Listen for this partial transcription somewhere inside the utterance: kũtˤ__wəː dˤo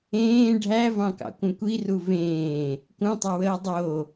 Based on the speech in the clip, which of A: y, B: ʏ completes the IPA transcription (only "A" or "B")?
B